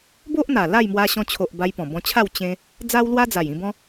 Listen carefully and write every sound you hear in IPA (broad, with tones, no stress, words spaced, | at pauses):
bo˦ʔn̪a˨˩ la˥˧jmwa˧ɕɔ̃˧t͡ɕʰo˨ʔ ba˧jpɔ̃˨˩bɔ̃˧t͡ɕʰa˥˧w t͡ɕẽ˦ | d͡za˦wlwa˦d͡za˨˩j ĩ˧bɔ̃˦